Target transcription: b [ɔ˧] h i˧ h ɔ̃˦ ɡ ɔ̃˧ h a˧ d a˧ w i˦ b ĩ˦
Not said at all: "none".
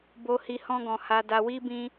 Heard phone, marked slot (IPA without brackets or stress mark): o˧